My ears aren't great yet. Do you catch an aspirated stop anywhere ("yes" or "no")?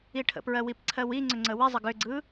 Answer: yes